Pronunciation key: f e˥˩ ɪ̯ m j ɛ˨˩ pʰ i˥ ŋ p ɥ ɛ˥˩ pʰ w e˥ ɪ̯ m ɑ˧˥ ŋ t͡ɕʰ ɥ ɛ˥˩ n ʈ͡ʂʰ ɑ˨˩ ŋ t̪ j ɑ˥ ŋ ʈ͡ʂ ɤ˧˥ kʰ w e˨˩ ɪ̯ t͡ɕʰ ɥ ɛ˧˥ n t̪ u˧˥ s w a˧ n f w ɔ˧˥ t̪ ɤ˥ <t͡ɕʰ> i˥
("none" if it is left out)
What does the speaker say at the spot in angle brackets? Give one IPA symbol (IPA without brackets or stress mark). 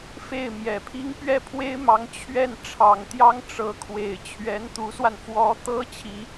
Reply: t͡ɕʰ